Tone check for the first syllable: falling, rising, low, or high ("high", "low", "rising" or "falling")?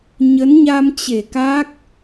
rising